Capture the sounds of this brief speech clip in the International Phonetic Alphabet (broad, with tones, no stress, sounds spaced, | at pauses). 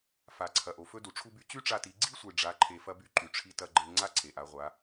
f a˩ ǀʰ ɐ˩ ʔ o˩ f ɵ˧ d u˩ ʈ͡ʂʰ u˧ b y˧ t͡ɕ y˥ ʈ͡ʂ a˧ t i˩˧ ɡ͡ǀ i˥ sʷ e˩ ɖ͡ʐ a˧˥ ǃʰ e˧ f ɐ˥ b y˥ ǃ y˩ ʈ͡ʂʰ i˧ t ɐ˧ ɡ͡ǃ e˧ ŋ͡ǀ a˥ ǀʰ e˩ ʔ a˩˧ ʁʷ a˩˧